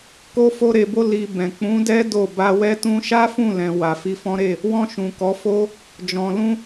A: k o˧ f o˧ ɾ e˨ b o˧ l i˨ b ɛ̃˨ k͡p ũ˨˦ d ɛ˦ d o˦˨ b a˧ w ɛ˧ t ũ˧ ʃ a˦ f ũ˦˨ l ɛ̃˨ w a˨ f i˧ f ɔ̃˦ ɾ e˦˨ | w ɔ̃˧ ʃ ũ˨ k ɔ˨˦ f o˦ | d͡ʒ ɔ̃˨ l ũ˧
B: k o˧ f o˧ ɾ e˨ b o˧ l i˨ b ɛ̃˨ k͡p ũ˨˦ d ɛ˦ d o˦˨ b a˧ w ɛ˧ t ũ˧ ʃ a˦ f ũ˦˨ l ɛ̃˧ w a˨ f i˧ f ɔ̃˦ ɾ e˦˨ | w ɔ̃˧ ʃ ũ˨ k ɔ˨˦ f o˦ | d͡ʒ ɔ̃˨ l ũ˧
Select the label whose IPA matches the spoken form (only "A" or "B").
A